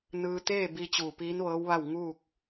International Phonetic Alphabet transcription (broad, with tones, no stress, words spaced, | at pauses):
nɯː˧t̪eː˥˨ bi˧ t͡ɕuː˧˩piː˧˥nʋɤː˧˥wʋa˥˨w ŋuː˥˨k̚